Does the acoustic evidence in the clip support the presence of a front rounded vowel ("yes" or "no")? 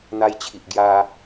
no